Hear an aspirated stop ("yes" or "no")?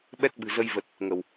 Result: no